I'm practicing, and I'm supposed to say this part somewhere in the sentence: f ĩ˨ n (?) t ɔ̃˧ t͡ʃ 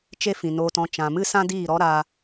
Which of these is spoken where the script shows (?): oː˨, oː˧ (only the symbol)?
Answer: oː˧